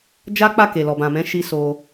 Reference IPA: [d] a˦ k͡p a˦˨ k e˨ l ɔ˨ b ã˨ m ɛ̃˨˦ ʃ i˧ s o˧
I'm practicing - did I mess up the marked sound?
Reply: yes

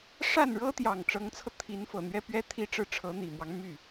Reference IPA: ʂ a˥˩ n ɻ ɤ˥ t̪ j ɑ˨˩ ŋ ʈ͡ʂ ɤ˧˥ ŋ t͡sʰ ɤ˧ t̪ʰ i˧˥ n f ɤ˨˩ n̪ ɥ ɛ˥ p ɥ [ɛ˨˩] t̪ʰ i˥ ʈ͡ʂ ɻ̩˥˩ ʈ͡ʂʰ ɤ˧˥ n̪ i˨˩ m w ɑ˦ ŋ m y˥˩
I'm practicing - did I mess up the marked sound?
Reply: yes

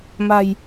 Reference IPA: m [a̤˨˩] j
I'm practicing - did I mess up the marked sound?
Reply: no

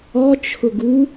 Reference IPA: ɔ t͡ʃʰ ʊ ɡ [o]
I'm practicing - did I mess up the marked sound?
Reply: yes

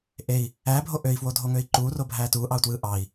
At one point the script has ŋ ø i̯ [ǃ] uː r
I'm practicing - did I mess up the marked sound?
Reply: no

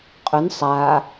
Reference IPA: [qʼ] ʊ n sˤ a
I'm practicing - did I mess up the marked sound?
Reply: no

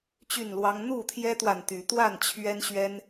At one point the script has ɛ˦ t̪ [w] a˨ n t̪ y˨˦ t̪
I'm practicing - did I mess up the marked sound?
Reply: no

